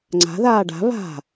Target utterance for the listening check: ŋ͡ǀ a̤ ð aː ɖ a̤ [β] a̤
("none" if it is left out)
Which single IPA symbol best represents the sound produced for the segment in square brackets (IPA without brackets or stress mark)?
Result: β